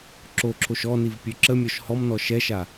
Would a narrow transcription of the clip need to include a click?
yes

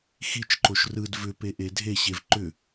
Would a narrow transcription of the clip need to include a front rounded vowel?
yes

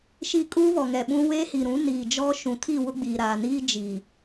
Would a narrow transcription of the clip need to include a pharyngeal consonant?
no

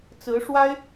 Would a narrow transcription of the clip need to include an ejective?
no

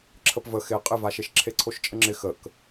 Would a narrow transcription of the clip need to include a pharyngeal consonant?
no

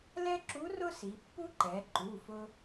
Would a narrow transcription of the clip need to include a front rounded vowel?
no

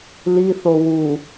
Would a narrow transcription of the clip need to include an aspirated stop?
no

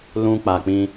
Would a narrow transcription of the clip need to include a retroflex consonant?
no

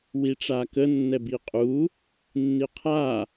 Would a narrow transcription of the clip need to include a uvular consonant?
yes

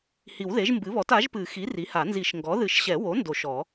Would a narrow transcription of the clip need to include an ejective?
no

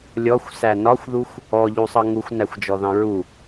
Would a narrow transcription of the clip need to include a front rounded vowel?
no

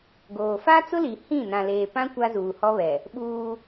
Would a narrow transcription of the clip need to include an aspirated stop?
no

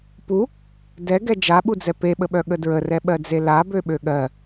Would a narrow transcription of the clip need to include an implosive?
yes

